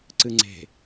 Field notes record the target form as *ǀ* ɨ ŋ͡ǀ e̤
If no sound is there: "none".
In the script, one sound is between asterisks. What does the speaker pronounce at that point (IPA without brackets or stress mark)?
ǀ